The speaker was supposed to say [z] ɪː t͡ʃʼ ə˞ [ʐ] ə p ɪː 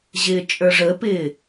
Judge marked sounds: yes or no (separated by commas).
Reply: no, yes